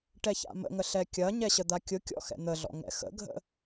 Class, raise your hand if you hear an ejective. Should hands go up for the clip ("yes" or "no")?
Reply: no